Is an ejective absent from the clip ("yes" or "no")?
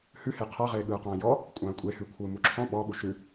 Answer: no